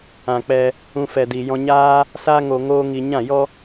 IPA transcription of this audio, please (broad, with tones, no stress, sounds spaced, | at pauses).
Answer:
ã˨ k͡p ɛ˧ | ũ˧ f ɛ˨ d i˨ j ɔ̃˧ ɲ aː˦ | s a˧ ŋ o˨ ŋ oː˧ ŋ i˨ ɲ ã˦˨ j ɔ˦